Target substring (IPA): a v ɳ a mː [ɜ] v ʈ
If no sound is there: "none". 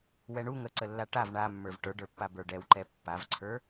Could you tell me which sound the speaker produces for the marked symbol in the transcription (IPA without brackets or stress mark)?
ə˞